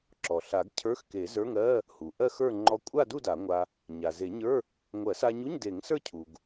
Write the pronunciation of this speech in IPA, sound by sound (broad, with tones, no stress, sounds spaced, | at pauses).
ǁ ɔ˩ ɬ a˨˩˦ ɡ cʰ ə˞˧˥˧ x k e˨˩˦ z ə˞˧˥˧ ŋ ɜ˧˥˧ | h u˩ ʔ ɜ˥˧ x ə˞˥˧ ŋ͡ǃ ɔ˧ kʷʼ a˥˧ d u˥˧ d a˨˩˦ ŋʷ a˧ | ɲ a˩ z e˨˩˦ ɲ ə˞˧˥˧ | ŋʷ ɜ˨˩˦ s a˧ ɲ u˧˥˧ ɲ d e˨˩˦ ŋ s ə˞˥˧ cʰ u˩ ɡ